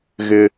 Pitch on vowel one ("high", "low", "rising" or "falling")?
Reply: high